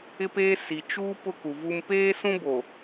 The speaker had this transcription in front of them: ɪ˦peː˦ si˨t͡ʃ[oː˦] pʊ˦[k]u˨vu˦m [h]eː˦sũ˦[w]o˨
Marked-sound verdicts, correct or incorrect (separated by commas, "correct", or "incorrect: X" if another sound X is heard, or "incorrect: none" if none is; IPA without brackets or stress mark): incorrect: uː˦, correct, incorrect: p, incorrect: b